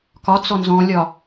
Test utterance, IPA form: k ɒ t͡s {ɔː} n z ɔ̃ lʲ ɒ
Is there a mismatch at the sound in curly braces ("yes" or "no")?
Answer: yes